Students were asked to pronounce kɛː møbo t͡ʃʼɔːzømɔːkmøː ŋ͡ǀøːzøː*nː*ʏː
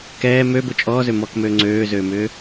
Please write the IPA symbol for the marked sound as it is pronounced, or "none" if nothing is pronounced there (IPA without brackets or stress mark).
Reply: m